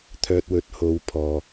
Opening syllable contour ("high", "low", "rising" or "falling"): low